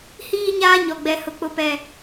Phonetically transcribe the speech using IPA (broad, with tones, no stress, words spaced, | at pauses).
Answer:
hiː˦ɲaː˦ɲɔ˨ ɡ͡bɛ˨hʊ˨ k͡pʊ˦pɛ˦